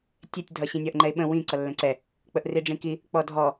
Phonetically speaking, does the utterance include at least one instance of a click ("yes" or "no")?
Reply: yes